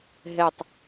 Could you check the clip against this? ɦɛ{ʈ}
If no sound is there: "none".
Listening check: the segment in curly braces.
tˤ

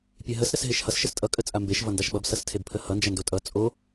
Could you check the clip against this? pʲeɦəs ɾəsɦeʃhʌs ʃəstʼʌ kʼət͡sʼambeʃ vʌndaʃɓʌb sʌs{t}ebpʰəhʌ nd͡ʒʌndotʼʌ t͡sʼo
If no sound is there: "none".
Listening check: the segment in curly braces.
tʰ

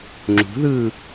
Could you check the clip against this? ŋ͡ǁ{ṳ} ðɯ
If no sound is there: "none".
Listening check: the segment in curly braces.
ṳ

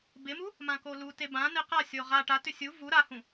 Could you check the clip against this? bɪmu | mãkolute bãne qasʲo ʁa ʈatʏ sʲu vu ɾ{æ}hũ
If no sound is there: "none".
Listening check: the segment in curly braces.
a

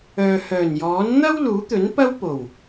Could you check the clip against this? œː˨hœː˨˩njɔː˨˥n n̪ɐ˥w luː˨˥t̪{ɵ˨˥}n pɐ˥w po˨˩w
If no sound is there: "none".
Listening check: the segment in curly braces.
ɵ˨˥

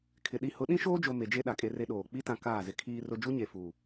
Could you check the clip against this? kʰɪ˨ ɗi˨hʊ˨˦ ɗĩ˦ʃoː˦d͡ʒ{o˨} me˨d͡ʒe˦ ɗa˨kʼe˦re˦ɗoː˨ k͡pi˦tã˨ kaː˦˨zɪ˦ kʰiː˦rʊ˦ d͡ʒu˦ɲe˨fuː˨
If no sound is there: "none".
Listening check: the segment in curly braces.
o˨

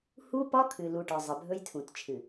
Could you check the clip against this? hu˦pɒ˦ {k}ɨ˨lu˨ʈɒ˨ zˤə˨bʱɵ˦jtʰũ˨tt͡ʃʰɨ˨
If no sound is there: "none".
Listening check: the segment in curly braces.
kʰ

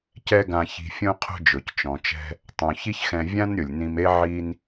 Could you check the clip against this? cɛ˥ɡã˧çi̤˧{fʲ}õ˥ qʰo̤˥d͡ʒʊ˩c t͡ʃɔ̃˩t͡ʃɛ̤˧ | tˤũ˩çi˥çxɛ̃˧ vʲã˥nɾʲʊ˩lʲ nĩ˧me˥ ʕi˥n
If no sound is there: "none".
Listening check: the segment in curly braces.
fʲ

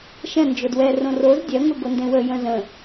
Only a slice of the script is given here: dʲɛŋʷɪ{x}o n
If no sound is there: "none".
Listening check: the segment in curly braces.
ɡ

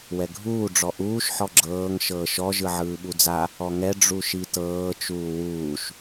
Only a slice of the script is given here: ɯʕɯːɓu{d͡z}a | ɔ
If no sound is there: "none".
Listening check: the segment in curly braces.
d͡z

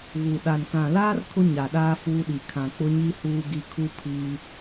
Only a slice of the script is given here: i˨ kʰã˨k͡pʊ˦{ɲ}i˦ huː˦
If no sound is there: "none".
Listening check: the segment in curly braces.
ɲ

